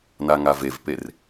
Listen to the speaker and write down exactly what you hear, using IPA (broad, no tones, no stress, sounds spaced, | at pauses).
n a ŋ a v e v p e r